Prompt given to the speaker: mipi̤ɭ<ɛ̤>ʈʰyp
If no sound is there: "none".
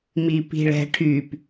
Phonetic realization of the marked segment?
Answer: ɛ̤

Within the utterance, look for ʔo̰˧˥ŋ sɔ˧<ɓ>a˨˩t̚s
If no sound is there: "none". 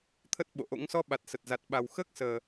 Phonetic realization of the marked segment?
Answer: ɓ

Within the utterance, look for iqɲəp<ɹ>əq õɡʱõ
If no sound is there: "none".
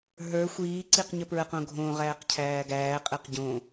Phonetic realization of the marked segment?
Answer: ɹ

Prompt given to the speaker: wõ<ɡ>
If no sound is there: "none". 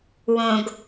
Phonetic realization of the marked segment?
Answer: ɡ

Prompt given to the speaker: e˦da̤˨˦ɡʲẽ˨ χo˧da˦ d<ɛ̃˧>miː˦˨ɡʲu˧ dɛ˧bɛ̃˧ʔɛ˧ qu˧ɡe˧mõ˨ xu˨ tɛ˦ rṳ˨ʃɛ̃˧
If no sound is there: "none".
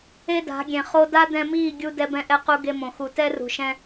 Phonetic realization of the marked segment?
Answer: ɛ̃˧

